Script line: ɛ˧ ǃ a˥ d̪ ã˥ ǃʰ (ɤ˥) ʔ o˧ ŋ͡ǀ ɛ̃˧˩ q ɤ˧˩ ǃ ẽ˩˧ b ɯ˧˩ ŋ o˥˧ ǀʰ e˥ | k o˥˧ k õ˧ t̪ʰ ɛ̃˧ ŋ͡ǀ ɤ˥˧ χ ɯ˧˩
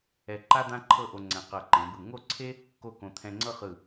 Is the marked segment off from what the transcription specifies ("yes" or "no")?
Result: yes